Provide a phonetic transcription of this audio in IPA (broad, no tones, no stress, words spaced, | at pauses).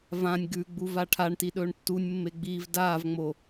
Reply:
vãnʲ ɡʉɡ͡bu vaʈʰaɳti ɗɵːɳtːunʲmːe ɡ͡biːvdaːvŋ͡mo